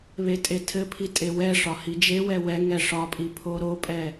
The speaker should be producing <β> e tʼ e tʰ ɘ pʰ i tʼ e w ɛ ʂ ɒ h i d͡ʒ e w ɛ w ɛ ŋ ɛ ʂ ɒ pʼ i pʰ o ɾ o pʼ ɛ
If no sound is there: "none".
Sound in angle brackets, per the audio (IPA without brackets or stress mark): β